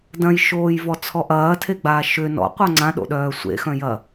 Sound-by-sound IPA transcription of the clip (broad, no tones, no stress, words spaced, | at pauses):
dɐ̃jʃoːjvɔt͡sʰɔ ʔɐːtʰeɡ͡baː ʃʏ nɔ̰qʷœ ŋ͡ǀãɗo̰ɗœː sʷḛxœ̃jɐ